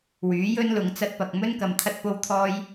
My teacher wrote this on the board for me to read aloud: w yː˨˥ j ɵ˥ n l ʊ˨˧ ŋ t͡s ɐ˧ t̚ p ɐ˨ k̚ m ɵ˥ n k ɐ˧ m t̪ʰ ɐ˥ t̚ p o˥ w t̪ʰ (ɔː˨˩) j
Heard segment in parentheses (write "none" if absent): ɔː˥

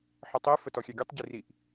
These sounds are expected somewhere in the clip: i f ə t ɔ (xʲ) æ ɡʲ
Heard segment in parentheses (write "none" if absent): xʲ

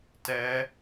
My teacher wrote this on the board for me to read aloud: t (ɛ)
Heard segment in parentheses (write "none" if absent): ɛ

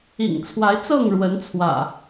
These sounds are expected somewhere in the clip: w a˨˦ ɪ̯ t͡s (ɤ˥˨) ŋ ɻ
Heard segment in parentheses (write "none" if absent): ɤ˥˨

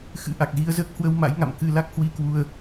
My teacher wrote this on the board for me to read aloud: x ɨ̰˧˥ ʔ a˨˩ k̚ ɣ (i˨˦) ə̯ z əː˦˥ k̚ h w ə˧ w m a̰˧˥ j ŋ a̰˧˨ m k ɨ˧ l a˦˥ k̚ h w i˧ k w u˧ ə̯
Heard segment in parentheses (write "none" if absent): i˧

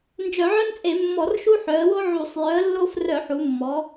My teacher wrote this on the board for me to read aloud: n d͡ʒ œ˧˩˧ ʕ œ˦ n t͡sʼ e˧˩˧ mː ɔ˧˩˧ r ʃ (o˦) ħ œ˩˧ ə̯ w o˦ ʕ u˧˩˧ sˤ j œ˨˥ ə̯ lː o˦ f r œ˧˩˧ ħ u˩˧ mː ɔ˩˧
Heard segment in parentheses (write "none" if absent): u˦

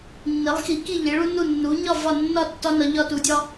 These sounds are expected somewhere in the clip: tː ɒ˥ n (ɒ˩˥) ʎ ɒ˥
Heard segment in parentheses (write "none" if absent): ɒ˩˥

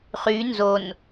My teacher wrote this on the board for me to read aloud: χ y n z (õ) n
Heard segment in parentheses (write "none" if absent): o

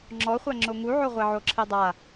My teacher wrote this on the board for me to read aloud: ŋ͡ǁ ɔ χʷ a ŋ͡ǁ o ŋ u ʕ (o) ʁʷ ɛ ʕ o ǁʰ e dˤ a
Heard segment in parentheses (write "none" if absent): o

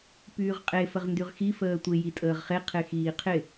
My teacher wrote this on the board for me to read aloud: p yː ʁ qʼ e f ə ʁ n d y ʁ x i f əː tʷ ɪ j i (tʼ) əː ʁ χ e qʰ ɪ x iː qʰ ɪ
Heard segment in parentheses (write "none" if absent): tʼ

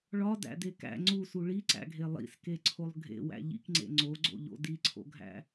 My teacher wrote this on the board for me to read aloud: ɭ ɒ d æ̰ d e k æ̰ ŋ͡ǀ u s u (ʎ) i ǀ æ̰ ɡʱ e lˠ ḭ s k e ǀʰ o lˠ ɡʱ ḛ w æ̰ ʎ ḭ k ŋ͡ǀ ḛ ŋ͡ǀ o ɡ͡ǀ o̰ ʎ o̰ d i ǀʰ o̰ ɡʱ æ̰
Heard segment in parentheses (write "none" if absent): ɭ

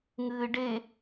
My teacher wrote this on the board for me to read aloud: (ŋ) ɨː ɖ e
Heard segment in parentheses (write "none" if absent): ŋ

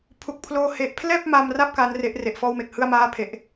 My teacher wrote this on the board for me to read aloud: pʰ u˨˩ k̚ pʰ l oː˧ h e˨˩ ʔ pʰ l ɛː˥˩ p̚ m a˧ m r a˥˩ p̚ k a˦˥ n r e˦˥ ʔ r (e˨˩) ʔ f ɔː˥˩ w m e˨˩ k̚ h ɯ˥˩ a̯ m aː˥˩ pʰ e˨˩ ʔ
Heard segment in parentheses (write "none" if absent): e˨˩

